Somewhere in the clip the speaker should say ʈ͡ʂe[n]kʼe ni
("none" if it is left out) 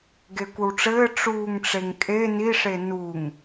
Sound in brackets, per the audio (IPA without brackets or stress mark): ŋ